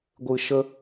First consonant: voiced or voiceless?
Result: voiced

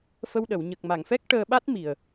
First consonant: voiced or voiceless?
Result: voiceless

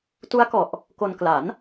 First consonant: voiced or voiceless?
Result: voiceless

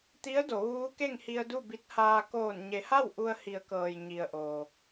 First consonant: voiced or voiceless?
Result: voiceless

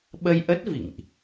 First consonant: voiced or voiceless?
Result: voiced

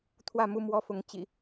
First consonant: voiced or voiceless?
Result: voiceless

